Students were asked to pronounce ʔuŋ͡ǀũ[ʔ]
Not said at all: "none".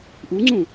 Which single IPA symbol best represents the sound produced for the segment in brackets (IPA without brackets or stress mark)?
none